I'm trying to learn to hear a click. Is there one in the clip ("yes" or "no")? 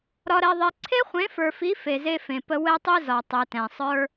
yes